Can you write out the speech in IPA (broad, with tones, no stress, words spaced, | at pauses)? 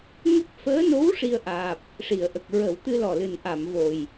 ŋə˦˥k̚ fəː˧˥no˧˥w ʂi˧ə̯ʔaː˨˩p̚ | ʂi˨˩˨ə̯ʔə˨˩k̚ ɹə˨˩˦wt̪ɨ˧ lɔ˨˩lɨ˨˩nʔa˨˩˨m vo˨˩j